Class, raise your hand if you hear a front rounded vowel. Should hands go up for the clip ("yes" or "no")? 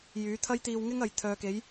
yes